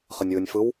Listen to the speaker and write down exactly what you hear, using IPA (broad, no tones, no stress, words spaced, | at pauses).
χənʲwɯnʲfɯw